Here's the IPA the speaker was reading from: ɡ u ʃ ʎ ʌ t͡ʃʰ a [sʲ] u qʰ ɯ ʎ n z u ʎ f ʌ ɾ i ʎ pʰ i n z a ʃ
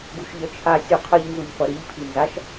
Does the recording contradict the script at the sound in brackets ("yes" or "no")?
no